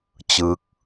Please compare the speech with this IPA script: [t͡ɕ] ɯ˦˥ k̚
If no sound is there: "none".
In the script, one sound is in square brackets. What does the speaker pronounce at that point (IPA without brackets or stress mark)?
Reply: t͡ɕ